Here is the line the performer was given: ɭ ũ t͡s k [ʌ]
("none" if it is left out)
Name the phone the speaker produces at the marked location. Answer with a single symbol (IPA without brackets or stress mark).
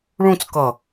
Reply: ʌ